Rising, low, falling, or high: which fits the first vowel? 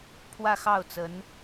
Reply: falling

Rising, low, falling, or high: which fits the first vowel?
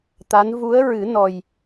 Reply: rising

